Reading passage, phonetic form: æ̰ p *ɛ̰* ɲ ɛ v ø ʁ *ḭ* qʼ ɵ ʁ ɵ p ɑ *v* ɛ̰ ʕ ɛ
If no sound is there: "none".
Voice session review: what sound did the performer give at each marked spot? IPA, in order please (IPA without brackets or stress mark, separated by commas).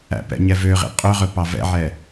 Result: ɛ̰, ḭ, v